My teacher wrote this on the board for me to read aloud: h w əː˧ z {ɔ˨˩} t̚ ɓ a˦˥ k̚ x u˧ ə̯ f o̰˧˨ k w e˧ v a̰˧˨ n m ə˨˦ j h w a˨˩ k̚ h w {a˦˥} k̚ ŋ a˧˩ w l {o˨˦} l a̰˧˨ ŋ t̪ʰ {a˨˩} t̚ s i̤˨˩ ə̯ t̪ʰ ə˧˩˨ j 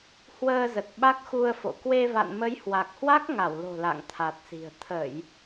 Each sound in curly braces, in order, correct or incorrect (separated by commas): incorrect, correct, incorrect, correct